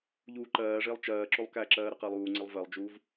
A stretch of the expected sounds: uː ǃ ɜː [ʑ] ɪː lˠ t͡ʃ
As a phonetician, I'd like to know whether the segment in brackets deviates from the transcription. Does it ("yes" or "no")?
yes